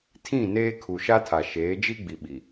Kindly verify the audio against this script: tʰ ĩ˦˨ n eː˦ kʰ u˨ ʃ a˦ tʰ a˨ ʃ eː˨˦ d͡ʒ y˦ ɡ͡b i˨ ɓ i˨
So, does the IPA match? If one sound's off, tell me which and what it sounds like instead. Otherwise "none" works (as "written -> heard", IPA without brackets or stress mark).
y˦ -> i˦